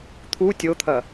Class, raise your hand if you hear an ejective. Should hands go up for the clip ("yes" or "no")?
no